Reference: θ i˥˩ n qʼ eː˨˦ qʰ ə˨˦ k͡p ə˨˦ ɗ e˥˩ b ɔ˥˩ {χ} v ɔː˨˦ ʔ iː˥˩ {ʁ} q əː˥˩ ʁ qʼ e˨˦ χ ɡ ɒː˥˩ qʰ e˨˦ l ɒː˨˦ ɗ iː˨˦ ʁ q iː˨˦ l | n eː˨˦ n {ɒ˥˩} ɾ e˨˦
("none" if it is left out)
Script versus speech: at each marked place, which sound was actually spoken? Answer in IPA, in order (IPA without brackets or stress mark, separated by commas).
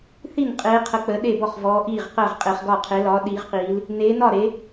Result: χ, ʁ, ɒ˥˩